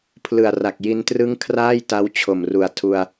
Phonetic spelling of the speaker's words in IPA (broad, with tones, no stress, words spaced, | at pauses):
pʰlɯ˨˩a̯ra˨˩k̚ji˧ntrɯ˦˥ŋ kʰraː˥˩jta˦˥w t͡ɕʰo˨˩mru˨˩a̯ tʰu˧a̯